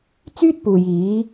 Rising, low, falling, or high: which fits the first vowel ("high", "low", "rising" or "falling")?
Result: high